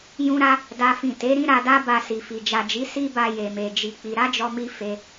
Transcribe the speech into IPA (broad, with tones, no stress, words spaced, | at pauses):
jũ˦ɾa˦ | da˦fĩ˦˨ te˨˦ɾĩ˦ ɾa˧da˦ba˧ si˨fi˨ d͡ʒa˨d͡ʒi˨˦ si˦ba˧ je˨me˨ d͡ʒi˧k͡pi˧ ɾa˦d͡ʒɔ˧mi˧ fe˧